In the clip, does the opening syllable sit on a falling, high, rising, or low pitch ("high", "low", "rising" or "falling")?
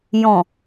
low